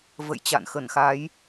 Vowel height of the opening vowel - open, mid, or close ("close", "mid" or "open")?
mid